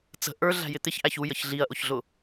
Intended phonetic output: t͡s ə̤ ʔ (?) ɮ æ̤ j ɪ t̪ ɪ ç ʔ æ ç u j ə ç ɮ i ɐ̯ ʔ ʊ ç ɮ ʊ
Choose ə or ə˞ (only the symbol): ə˞